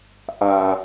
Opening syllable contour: low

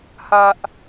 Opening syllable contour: low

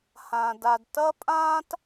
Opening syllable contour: low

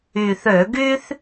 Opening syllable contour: low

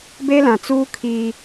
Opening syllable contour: high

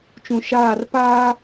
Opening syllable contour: low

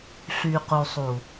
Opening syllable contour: low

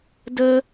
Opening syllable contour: high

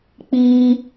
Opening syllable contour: high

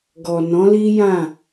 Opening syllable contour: low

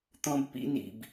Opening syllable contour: high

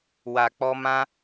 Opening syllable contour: low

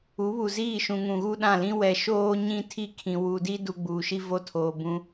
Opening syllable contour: rising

